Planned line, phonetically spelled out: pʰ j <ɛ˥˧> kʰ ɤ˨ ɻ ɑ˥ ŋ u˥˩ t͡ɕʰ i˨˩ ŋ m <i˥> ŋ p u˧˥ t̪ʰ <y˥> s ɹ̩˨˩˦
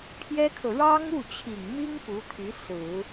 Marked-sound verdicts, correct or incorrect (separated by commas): incorrect, correct, incorrect